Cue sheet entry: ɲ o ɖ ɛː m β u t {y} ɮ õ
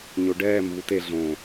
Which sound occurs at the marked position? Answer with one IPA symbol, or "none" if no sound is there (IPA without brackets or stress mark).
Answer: e